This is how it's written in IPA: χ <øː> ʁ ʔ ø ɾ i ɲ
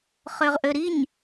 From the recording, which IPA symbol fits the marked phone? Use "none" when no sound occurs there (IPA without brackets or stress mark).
ø